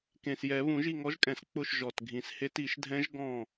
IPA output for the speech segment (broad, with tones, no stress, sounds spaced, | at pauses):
k ẽ˨˩ s j ɛ˨˩˦ β ũ˨˩˦ ʒ i˦˨ ŋ ɔ˨˥ ʒ kʼ ɛ̃˨˩˦ s k͡p ʊ˦˨ ʃ ʒ ɔ˨˩ t ɡʱ ĩ˨˩˦ s h e˦˥ t i˨˩˦ ʃ dʱ ɛ̃˦˥ ʒ ɡ ɔ̃˦˨